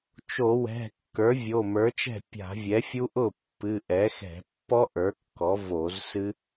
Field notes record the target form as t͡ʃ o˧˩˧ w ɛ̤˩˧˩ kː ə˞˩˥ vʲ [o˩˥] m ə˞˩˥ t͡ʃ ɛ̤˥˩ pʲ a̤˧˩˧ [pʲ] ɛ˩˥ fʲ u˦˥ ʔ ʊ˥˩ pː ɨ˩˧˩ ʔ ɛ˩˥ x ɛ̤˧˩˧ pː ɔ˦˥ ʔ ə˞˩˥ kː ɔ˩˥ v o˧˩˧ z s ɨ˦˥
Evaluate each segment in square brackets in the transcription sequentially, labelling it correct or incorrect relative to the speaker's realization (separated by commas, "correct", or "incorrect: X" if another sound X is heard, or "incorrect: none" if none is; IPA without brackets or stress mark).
incorrect: o˩˧˩, incorrect: vʲ